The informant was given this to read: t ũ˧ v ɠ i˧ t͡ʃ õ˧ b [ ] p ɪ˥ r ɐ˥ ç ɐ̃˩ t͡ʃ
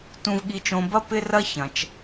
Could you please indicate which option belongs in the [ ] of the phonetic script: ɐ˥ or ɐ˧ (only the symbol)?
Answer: ɐ˥